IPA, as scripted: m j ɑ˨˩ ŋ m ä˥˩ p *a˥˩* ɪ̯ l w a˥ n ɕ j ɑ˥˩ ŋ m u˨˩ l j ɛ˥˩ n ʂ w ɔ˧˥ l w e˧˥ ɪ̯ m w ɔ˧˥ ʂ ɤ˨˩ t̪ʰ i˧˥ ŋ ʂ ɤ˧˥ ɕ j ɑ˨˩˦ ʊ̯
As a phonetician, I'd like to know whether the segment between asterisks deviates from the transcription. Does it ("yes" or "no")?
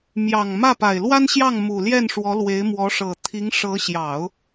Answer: yes